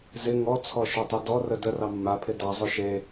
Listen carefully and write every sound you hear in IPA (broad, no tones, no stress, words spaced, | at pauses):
zɪ ŋɔt͡sʰɔʃɵtˤe dɔrə dərɑ mːapʰɪ dɑzˤɵ ʃe